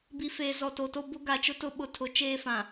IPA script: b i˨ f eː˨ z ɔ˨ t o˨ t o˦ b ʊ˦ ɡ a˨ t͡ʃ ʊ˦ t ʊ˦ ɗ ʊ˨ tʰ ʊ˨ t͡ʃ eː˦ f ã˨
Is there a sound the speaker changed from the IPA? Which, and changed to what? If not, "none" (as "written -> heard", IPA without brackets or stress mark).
ɗ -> ɓ